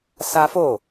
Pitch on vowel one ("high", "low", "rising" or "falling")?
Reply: high